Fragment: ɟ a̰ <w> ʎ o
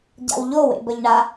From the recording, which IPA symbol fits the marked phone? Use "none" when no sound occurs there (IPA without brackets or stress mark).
w